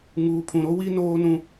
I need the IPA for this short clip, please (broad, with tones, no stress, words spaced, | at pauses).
ŋuː˨pʰũ˨ɾo˦ wi˦ noː˦nũ˦